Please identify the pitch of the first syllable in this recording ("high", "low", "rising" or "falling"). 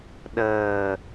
low